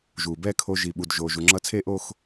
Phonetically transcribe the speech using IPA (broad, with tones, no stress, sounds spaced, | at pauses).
ʒ uː˩ b ɛː˥˧ kʰ o˧ ʒ i˩ ɓ u˩ d ʒ o˩ ʒ u˩ ŋ͡ǁ ʌ˧ t͡sʰ e˥˧ ʔ o˥˧ x